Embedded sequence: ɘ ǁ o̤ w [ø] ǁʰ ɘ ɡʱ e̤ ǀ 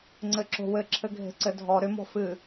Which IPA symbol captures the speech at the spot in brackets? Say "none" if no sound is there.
ɘ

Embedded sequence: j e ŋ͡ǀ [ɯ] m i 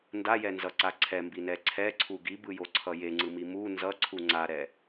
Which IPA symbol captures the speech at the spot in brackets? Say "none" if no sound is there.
ɯ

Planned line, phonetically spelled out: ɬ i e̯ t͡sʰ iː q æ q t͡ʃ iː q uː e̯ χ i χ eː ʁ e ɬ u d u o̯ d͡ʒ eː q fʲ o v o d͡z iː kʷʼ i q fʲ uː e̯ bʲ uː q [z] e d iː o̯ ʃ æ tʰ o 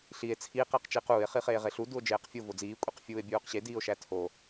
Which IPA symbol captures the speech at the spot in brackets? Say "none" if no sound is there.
ɕ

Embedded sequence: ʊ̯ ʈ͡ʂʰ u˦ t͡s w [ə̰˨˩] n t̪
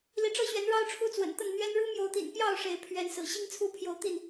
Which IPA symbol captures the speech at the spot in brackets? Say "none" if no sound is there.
ə̰˨˩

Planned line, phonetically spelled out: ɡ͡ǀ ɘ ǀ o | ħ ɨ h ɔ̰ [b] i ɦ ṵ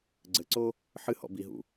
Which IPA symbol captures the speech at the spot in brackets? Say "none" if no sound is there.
b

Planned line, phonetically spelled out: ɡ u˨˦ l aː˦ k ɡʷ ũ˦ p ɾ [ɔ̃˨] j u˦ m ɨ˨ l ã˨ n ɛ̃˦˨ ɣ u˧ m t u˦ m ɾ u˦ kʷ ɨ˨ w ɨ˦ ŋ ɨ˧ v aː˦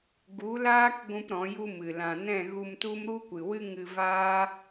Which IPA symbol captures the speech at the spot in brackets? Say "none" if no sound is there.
ɔ̃˨˦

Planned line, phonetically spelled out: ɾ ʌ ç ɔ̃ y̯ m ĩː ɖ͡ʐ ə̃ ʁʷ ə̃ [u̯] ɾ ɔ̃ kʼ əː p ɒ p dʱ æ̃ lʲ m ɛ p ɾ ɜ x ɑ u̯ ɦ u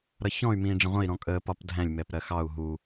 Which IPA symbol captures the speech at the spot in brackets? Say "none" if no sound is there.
i̯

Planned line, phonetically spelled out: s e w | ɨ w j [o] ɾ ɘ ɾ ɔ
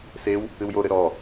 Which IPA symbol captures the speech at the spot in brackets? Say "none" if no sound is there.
o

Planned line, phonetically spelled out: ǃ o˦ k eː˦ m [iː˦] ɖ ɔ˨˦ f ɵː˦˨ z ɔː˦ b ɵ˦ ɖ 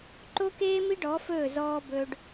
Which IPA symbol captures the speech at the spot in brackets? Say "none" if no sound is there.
i˦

